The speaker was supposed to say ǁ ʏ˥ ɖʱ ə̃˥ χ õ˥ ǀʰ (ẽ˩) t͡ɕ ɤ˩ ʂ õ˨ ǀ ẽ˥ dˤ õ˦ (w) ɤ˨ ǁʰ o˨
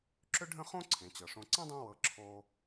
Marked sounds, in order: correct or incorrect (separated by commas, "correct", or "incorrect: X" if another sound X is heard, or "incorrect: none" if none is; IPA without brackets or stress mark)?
correct, correct